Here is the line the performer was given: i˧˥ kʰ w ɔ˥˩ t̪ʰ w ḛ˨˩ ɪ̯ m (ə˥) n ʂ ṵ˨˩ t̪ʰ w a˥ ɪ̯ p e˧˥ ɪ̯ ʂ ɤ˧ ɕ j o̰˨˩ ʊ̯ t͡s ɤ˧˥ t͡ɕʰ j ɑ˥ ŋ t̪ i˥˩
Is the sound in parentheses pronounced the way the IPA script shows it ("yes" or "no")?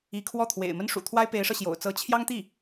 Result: yes